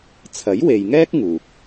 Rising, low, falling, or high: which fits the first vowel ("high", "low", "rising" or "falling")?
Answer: rising